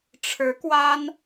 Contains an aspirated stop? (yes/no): yes